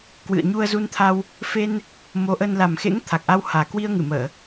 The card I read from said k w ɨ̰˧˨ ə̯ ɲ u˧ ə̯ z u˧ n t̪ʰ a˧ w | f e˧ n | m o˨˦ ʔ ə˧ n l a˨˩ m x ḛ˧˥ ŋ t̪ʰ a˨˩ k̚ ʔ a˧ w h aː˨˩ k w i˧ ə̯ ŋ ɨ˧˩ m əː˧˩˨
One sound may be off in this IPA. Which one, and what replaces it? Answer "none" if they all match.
none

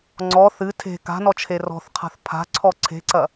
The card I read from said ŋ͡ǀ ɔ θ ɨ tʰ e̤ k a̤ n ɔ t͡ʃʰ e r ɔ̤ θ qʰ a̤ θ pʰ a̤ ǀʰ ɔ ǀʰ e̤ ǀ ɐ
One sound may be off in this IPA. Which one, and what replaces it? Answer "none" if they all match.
none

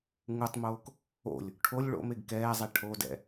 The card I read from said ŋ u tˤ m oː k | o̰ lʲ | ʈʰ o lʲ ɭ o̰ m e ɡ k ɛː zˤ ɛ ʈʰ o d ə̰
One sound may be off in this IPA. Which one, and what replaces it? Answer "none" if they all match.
ə̰ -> ɛ̰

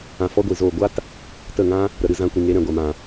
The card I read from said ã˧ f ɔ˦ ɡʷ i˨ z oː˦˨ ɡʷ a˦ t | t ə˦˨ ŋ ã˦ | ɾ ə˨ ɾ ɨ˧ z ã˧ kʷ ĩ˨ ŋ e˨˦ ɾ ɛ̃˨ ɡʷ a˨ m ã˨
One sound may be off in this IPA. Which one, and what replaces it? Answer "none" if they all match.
none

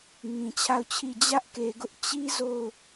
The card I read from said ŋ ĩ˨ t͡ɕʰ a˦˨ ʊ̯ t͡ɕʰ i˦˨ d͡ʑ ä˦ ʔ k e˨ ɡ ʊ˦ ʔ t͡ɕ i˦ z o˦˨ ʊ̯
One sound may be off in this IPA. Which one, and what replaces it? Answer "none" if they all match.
none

